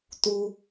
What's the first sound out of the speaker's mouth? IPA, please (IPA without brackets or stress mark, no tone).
t